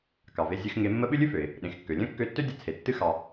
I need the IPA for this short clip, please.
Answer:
kɑ˩ve˧zʲɨ˧x ŋe˧mːə˥ ɓɨ˥lʲɨ˥fø˩ɪ̯ | ɗẽ˩xkːø˩lʲœ̃˥ kːø˧tːø˥dʲə˧ t͡sʰe˩ tːɨ˧xɑ˩

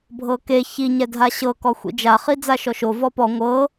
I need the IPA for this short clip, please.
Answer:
bʱɤke çiɲɛ dʱaɕɤkɔ xʷḭd͡ʒaχi d͡zaʃɔʃo vɔpɔ ŋʷɤ

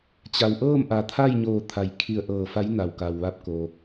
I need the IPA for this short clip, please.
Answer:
t͡ɕa˩wʔɤː˥˨mʔa˩˧ t̪ʰa˥˨jɲoː˧˩ t̪ʰa˩jkʰi˧˩ə̯ʔɤː˧˩ fa˧˥jna˩wka˩wʋa˧p̚ ko˩

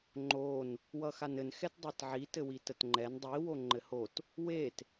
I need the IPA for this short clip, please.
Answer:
ŋ͡ǃon | wʌxanɘn xɛtdˤetʕi tɘwitətŋ͡ǃɛn dˤi woŋ͡ǃɘhot | wet

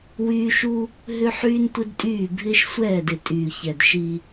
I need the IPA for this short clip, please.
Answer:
wyː˦ ʃu˦ | ɦʏ˦ ħyː˦ntʷɪ˦dtʼyː˦˨ bʱɪː˦ʃsʷɛː˦˨dɪ˨ tʼyː˨çɛ˨dʃi˦

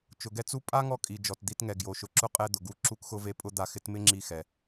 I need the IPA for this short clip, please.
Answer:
t͡ʃʊ˩ɡɛ˥t͡su˥ pʼa˥ ŋɔ˧kʼi˩ d͡ʒɔ˩td̪i˧tŋɛ˩ ɡjo˩ʃʊ˩ǁʊ˧ qʼɛ˧d̪ʊ˩ɡu˧ ǁu˧kxʊ˧ve˧ pʼʊ˥d̪a˧xɪ˥t mɪ˥ŋ͡ǁi˧xɛ˩

